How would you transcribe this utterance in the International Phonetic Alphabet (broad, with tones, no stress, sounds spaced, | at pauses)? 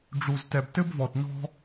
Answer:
ɖ͡ʐ u˨ z t ɛ˨ b t ɘ˥ b v ɔ˨ t n ɔ̤˦